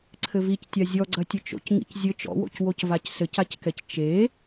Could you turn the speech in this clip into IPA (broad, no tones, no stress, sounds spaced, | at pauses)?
ǀʰ ɘ v i c tʲ a zʲ ɔ ɡ͡ǀ ɐ tʲ ɘ t͡ʃ o̰ c ŋ ḭ c zʲ ɘ t͡ʃ ɔ̰ w o̰ c w o c v a c s ɘ c a c k ɛ c t͡ʃ e